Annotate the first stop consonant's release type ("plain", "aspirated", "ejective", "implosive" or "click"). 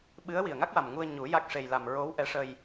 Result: implosive